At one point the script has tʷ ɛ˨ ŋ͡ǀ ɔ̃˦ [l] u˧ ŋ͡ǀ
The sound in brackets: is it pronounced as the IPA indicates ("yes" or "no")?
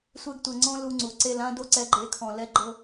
yes